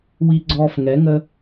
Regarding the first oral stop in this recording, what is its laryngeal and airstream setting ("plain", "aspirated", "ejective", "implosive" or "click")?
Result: click